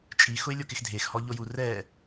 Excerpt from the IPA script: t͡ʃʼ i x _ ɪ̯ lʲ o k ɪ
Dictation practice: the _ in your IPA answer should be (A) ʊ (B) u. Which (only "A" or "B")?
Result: A